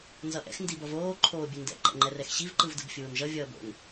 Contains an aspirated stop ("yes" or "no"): yes